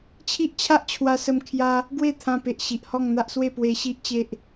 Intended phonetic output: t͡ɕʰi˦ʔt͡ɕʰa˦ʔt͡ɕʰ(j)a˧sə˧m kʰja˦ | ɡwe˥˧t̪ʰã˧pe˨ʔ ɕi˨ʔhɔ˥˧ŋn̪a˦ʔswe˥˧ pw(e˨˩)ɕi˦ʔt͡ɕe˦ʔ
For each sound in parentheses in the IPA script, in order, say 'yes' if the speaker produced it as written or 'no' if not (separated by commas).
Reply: no, no